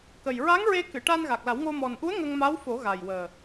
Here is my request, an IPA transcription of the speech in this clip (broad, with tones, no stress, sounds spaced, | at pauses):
k ə˨˩ j ɹ a˧˥ ŋ ɹ e˧ k ɨ˨˩˨ ʈ a˧ n ɣ a˨˩ k̚ l a˨˩˦ w ŋ o˧ m ɔ˨˩ n ʔ u˧˥ ə̯ ŋ ə˧ ŋ m a˧˥ w f o˨˩˦ ɣ a˨˩ j w əː˨˩